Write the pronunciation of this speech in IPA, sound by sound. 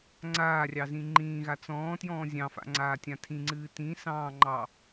ŋ͡ǀ aː rʲ ɑ z ĩ ŋ͡ǃ ĩː ɣ a t͡s ɔ̃ː t j ɔ̃ː zʲ ɑ̃ f a̰ ŋ͡ǀ aː tʲ ã tʰ ĩ ŋ͡ǀ ɨː t ĩ s ɑ̃ː ŋ͡ǃ ɑ

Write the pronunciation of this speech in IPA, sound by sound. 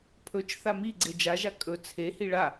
pʰ ɵ t͡ʃ θ a m i ɡ͡ǀ e d͡ʒ a ʒ a kʼ ɵ t͡sʰ e h i ɭ a

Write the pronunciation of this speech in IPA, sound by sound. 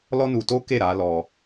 l ɔ˦ n u˧ t o˦ k e˦˨ ɾ a˨˦ l ɔ˧

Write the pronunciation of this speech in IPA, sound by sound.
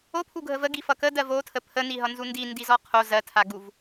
o pʰ u ɡʱ ə v ə ɡ i f ʌ k ə d ɜ v o tʰ ə pʰ ə n i ɦ ʌ n z u n d i n d i z ɔ qʰ o z ɜ tʰ a ɡ u v

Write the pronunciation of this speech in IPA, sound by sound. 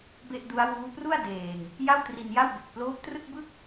b e˥˩ ʔ d u˦˥ a̯ w uː˦˥ p r u˥˩ a̯ d eː˨˩ ŋ | j a˥˩ w t r i˧ n j a˥˩ w b e˨˩ k̚ p l oː˦˥ p̚ t r ɯ˥˩ k̚ b ɯ˥˩ k̚

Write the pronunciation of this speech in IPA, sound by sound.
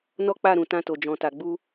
n ɔ˦ k͡p a˦˨ ɾ ũ˨ t ã˧ t o˨ d͡ʒ ɔ̃˨ t a˨ ɡ͡b u˧

